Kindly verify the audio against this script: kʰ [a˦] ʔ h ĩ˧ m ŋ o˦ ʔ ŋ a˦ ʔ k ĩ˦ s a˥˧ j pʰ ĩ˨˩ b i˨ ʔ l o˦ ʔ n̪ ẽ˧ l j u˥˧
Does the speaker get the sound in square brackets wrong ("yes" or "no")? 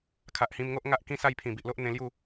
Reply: yes